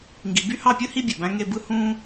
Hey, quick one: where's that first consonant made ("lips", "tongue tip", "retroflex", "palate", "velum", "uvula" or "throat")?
velum